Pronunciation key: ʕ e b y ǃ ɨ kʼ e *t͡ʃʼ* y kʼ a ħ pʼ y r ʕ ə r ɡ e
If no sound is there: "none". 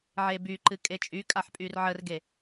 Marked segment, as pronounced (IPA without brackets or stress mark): t͡ʃʼ